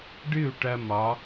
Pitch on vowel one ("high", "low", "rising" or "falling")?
falling